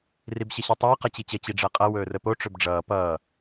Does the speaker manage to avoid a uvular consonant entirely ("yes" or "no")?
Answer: no